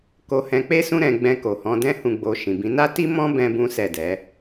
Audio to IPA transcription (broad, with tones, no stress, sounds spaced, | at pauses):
k o˧ h ɛ̃˧ k͡p e˦ s ũ˦ ɾ ɛ̃˧ ɡ͡b ɛ̃˧ k o˨ h ɔ̃˧ d ɛ̃˦ h ũ˧ ɡ͡b o˧ ʃ ĩ˨ b ĩ˨˦ n a˦ t i˦ m ɔ̃˦ b ɛ̃˦ b ũ˦ s ɛ˦˨ d ɛ˨˦